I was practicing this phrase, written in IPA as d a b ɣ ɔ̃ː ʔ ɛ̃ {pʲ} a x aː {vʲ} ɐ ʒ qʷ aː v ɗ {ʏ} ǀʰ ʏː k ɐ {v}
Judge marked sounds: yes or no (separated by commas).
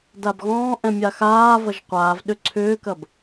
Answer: no, no, yes, no